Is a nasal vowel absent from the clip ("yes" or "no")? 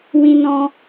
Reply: no